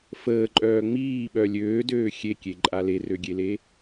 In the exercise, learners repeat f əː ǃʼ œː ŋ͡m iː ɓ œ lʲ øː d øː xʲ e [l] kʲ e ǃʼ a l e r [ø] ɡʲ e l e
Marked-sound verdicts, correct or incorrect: incorrect, correct

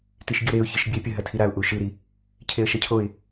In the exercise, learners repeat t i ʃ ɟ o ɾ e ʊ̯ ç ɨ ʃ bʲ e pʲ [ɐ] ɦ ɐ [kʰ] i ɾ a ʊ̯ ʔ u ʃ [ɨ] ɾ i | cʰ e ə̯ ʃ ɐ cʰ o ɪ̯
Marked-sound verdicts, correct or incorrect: correct, incorrect, correct

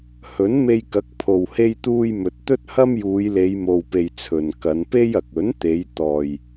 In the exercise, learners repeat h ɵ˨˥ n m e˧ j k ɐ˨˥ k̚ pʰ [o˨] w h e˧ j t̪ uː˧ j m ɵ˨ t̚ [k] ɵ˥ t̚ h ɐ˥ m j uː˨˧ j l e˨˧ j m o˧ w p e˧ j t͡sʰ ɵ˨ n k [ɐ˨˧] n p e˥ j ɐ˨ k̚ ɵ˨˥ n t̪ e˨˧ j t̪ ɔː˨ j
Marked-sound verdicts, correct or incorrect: correct, incorrect, correct

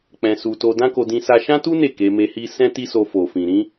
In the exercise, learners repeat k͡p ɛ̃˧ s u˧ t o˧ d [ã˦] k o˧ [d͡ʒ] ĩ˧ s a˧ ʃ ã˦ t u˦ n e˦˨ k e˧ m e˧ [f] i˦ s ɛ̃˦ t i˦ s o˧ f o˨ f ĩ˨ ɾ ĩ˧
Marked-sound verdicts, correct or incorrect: correct, incorrect, incorrect

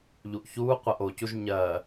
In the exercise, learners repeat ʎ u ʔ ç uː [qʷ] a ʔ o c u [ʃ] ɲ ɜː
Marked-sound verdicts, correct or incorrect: correct, incorrect

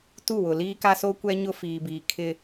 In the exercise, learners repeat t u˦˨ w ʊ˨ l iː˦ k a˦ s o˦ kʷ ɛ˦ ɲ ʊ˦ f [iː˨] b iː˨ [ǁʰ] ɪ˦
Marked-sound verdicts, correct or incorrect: correct, incorrect

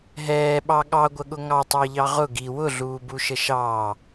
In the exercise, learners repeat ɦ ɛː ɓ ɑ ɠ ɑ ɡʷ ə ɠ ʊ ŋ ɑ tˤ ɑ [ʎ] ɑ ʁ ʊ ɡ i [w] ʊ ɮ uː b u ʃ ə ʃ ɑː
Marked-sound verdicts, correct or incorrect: correct, correct

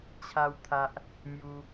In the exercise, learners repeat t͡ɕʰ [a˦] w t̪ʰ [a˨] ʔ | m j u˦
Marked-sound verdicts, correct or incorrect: correct, incorrect

